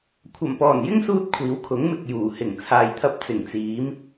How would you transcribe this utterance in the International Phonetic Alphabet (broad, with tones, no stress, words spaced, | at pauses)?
kʷʰɐ˨˩mpɔː˨˩njɪ˥ŋsuː˧t̚ kʷʰiː˨˧wkʰʊ˨˥ŋ mɪ˨k̚juː˨˩hɪ˨˩ŋ t͡sʰaː˨jt̪ʰɐ˧p̚ t͡sɪ˨˩ŋt͡siː˨˧m